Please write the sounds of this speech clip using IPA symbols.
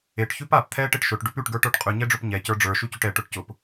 e ʈ ç ʉ p a p t̪ʰ ɛ ʈ e ʈ ʃ ʊ ʈ ɖ ʉ p ʉ ʈ ɡ ə˞ ʈ ə˞ ʈ qʼ ʉ ɲ ɛ ɖ͡ʐ ʊ p ɲ ɛ c ə˞ ɖ͡ʐ ə˞ ʃ ʉ c ʉ ʈ ɛ ʈ ʊ ʈ c ʊ p

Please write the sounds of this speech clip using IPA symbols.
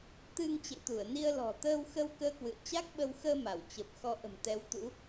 t̪ ɨ˧ ŋ t͡ɕ ḛ˧˨ t̪ u˧˩ ə̯ n i˧ ə̯ l ɔ̤˨˩ t̪ əː˧ w x ə˧ w k əː˧ k w ɨ̰˧˨ ə̯ t͡ɕ a˦˥ k̚ ɓ ə˧ w x əː˧ m a˧˩ w t͡ɕ ə˨˩ p̚ x ɔ˧ ʔ ə̤˨˩ m t̪ ɛ˨˦ w t̪ ṵ˧˥

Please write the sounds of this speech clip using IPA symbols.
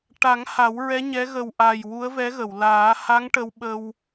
ʈ a˨˩˦ ŋ h a˨˩˦ w ɹ ɛ˧˥ ɲ ɛ˧˥ ɣ ə˨˩ w ʔ a˨˩ j w u˧˥ ə̯ v ɛ˧˥ ɣ ə˨˩˨ w l aː˨˩˦ h a˧˥ ŋ ʈ ə˧ w ɓ ə˧ w

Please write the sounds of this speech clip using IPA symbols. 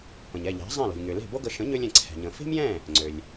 p ə̃˩ ɲ ɛ˥˩ ʎ ɛ̤˩˥ zˤ ɛ̃˥˩ l o̤˩ lʲ ŋ ø˩ l e̤˥˩ b o˥ ɡ ə˩˥ ʃ ə̃˩˥ ɲ ø˧ lʲ ɛ̃˩ ǀʰ ɛ̤˩ ɲ ə̃˩ f e̤˥ m j ɛ̃˥˩ | ŋ͡ǀ ø˩ lʲ

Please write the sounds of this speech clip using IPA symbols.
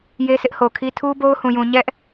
j e˦ s ɪ˦ ʔ h o˨ kʰ i˦ tʰ u˦ b o˦ ʊ̯ h ũ˨ j ũ˨ ɲ ɛ˦ ʔ

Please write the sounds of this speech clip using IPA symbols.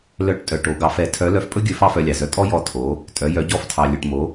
l œ˧˥ ʈ tʼ œ˩ ʈ o˩˧ ɡ ɑ˩˧ f ɛ˩˧ tʰ œ˧˥ l œ˧ f pʼ ɵ˥ ɡʲ ɵ˧˥ f ɑ˥ f œ˧ lʲ ɑ˩ z œ˧ tʼ ɔ˥ j ɔ˧ tʰ o˩˧ | tʼ œ˩˧ j œ˩˧ ɟ ɔ˧˥ f tʰ ɑ˩ lʲ ɵ˩ ʈ m o˩˧

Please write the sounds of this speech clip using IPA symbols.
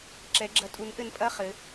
ǁ ɛ˨˦ ɡ͡ǁ ɐ˨˦ tʼ u˨˦ n ʔ ɘ˨˦ n pʼ ɐ˧˥˧ χ ɘ˨˦

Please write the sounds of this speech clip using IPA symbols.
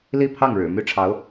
l i˥˧ pʰ ɑ˥˩ ŋ ɻ ɻ̩˨˩ m y˥˩ ʈ͡ʂʰ ɑ˧˥ ʊ̯

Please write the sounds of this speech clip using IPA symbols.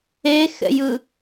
e x ɛ̰ j ɯ

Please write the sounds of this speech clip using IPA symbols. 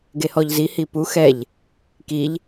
ɡ e h ɔ ʎ z i h i p u x ɛ ʎ | k i ʎ

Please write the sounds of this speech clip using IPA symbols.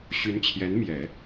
ɕ y˧˥ n t͡ɕʰ j ɛ˧˥ n m j ɛ˨˩˦

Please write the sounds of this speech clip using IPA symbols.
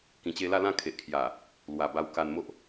k ĩ˨˩ t͡ɕ e˧ l a˥˧ l ã˥˧ kʰ e˨ ʔ kʰ j a˨˩ | l w a˨˩ b a˧ w k a˧ n m o˦ ʔ

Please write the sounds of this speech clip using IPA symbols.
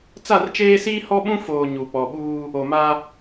t͡s a˦˨ r t͡ʃ eː˦ s iː˦ h ɔ˦ ɓ ũ˦ f oː˨ ɲ u˨ k͡p ɔ˨ ɓ uː˦ | o˨ m a˦

